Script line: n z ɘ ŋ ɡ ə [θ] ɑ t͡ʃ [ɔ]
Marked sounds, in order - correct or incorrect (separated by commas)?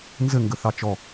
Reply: correct, correct